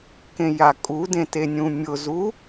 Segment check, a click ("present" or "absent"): absent